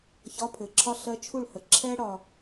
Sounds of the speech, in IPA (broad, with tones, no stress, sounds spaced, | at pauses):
ç ɒ˧˥˧ pʰ ɘ˨˩ ǁʰ ɒ˥ ɬ ɜ˧˥ t͡ʃʰ u˥˩ ɭ h ə˨˩ ǁʰ ɛ˥ ɽ ɒ˧